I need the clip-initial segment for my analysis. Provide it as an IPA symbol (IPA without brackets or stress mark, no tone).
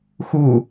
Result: x